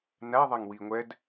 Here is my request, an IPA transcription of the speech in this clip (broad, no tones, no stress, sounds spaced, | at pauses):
n æ ðˤ ɛ ŋ w i ŋʷ ɛ d